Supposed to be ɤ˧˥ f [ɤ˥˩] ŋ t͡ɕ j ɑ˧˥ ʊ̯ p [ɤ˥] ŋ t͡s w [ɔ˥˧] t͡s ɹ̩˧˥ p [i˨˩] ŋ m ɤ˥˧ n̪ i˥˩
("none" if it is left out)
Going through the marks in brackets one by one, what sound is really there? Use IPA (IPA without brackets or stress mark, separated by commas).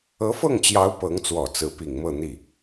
ɤ˥˩, ɤ˧˥, ɔ˨˩, i˨˩